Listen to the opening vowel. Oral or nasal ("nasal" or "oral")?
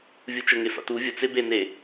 oral